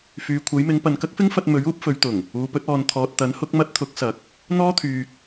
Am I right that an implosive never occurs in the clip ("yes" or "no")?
yes